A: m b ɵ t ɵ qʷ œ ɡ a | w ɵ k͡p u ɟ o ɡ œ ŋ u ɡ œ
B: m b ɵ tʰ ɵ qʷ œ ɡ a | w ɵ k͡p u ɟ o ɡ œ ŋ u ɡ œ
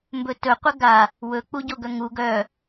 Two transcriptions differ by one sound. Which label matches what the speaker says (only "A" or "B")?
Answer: A